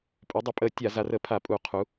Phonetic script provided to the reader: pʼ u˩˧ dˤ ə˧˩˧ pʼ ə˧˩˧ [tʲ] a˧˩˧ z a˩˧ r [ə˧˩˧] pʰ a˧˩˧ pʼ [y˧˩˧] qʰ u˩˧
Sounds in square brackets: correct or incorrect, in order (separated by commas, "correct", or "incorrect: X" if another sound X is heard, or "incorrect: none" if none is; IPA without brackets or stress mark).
correct, correct, incorrect: u˧˩˧